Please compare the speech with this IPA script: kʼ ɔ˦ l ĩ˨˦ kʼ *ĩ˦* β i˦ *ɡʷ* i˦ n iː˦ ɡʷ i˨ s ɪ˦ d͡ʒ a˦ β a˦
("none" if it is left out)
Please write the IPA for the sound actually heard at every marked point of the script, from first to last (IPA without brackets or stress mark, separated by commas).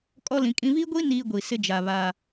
ĩ˦, ɡʷ